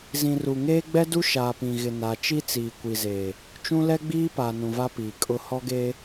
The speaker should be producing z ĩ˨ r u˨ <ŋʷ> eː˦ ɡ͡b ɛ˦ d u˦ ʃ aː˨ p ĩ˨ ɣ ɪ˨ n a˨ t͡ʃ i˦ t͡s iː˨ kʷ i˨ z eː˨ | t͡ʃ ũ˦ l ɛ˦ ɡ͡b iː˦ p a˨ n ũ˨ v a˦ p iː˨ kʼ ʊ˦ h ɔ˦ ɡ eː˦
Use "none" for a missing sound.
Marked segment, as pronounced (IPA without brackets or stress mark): ŋ